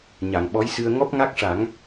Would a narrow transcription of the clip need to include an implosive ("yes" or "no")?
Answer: yes